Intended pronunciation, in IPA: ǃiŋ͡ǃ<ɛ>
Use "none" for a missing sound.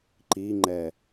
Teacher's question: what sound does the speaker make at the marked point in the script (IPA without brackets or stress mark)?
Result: ɛ